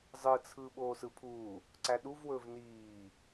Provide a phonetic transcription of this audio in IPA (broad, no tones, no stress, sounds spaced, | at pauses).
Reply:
zˤ ɯ t͡sʰ ɯ ɓ oː s ɯ pʰ u | ǀ æ ɗ u v w ɵː v n iː